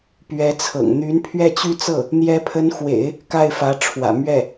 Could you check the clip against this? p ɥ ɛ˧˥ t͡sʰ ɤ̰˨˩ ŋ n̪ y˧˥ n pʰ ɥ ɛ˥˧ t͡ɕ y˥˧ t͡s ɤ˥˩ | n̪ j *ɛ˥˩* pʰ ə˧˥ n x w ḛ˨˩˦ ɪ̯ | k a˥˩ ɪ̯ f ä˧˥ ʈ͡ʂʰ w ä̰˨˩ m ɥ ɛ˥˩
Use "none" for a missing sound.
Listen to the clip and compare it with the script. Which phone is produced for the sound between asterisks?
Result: ɛ˧˥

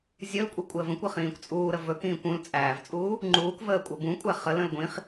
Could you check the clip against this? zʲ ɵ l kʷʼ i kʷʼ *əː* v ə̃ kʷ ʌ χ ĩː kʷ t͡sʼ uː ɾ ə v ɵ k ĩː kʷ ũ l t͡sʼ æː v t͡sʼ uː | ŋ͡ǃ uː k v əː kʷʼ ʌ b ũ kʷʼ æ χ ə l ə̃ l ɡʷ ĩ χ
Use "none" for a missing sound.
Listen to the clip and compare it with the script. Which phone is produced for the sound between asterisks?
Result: əː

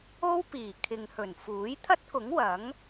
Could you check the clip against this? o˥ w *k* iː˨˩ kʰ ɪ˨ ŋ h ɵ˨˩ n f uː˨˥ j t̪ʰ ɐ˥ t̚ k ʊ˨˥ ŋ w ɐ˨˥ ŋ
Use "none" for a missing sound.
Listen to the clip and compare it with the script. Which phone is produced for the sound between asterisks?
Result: p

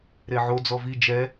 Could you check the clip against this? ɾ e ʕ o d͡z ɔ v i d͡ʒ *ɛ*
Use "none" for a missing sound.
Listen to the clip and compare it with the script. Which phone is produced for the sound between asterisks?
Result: ɛ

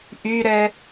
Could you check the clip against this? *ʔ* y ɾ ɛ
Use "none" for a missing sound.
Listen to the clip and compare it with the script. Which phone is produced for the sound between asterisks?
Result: ʔ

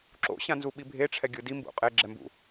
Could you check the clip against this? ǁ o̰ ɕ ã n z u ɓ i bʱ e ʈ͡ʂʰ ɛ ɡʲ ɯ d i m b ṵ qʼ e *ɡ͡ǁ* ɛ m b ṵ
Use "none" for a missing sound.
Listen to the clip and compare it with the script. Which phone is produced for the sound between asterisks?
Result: ɡ͡ǁ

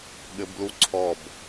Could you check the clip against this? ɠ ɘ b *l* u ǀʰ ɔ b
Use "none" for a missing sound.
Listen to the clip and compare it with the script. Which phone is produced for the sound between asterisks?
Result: l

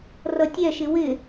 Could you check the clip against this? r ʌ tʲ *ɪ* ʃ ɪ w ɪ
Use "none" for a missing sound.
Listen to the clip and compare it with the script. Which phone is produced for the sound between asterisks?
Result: ɛ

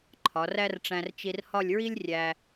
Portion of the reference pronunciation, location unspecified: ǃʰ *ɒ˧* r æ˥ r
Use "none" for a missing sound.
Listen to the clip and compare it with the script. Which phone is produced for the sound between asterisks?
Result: ɒ˩˧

